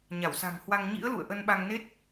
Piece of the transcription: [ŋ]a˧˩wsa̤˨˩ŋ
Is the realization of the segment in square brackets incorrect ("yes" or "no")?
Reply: yes